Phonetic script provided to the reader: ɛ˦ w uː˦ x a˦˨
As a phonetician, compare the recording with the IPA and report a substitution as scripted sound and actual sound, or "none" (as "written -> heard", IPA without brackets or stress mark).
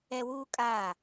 x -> kʼ